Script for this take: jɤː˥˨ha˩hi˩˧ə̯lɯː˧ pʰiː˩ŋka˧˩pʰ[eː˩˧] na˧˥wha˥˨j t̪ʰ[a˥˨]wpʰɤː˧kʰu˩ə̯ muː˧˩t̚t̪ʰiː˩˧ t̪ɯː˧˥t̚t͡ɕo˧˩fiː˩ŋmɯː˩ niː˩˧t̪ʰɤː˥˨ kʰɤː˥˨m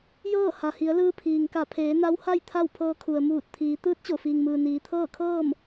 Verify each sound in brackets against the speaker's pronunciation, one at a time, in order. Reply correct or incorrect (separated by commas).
correct, correct